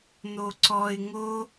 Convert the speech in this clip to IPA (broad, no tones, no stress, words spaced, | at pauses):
n̪oǀɔɪ̯ ŋo